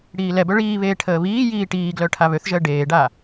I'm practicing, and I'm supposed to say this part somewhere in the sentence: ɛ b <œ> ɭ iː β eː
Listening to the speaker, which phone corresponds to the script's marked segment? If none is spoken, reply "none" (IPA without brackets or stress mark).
œ